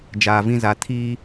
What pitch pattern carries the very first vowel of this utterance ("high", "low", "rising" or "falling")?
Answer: low